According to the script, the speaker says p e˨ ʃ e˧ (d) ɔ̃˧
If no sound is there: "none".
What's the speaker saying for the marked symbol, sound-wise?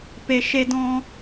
d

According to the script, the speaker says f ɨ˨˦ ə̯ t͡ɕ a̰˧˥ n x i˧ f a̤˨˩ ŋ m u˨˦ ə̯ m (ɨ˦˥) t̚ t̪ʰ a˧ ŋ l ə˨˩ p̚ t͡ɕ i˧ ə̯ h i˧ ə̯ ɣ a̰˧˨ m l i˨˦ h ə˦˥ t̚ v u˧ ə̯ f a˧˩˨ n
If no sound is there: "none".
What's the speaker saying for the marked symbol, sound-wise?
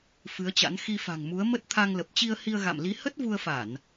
ə˦˥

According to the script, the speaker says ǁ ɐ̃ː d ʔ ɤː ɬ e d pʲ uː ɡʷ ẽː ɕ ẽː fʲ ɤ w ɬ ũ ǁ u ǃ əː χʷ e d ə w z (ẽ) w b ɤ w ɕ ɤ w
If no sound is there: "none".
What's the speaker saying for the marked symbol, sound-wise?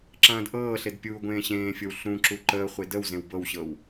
ẽ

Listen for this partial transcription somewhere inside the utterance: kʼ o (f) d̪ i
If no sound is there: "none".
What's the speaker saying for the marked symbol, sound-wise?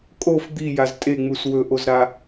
f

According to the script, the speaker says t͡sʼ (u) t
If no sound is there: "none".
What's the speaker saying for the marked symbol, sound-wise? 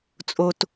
o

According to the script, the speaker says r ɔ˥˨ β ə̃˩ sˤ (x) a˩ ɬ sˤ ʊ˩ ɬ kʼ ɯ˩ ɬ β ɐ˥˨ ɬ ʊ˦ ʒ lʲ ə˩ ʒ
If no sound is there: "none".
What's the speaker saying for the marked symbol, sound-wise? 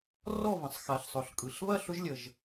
x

